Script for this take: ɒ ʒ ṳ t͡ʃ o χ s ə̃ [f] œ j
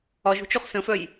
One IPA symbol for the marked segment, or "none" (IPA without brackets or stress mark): f